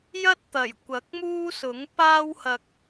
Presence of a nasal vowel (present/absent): absent